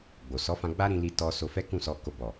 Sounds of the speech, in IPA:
ɡ͡b o˨ s ɔ˨˦ f ã˧ ɡ͡b a˦ ɾ ĩ˧ l i˧ t ɔ˧ s o˧ f ɛ˦ k ũ˦˨ s ɔ˧ k o˨ b ɔ˨

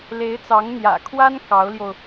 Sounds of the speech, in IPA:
l e˧˥ ɪ̯ t͡s ɑ˧˥ ŋ n̪ j ä̰˨˩ kʰ w a˥ n k ɑ˧˥ ʊ̯ l j o˧ ʊ̯

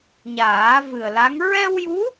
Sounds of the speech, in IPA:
ɲ aː˨˩˦ v ɨ˨˩ ə̯ l a˧˥ ŋ ɹ ɛ˧ w j u˧˥

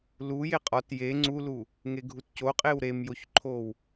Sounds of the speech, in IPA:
l u j e qʼ ɒ t j e ŋ͡ǀ u l u | ŋ e ɡʱ u t c o qʼ e w ɾ e m j o ç ǃʰ o w

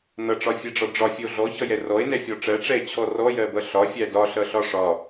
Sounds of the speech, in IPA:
n ʌ ʈ͡ʂ ɒ fʲ ɛ ɖ͡ʐ ɒ ɖ͡ʐ ɒ fʲ ə o̯ ɮ ɔ ç ʌ j ɛ r ɔ e̯ n ɛ fʲ ɔ ʈ͡ʂ ɜ ʈ͡ʂ ɛ e̯ t͡ɕʰ ɔ r ɔ j ɜ b ʌ ɬ ɒ fʲ æ d ɒ ɬ ʌ ɬ ɒ ʂ ɒ

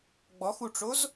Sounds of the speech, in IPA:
ɡ͡b ɔ x u ʈ͡ʂ o z

